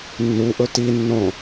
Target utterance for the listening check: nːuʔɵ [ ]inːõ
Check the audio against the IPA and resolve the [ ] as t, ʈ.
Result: t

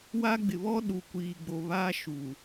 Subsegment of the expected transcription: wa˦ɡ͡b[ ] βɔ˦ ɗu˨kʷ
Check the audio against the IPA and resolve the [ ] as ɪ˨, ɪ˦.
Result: ɪ˨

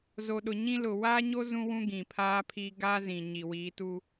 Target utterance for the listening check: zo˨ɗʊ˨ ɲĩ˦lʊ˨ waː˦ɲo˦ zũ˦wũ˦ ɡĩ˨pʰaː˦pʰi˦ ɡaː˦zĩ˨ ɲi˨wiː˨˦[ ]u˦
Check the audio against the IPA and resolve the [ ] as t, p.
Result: t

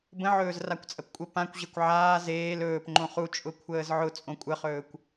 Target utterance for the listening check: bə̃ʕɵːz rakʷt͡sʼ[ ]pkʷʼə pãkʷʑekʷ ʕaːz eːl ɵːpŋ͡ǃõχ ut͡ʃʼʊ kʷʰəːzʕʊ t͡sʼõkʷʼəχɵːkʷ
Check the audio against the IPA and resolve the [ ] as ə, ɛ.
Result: ə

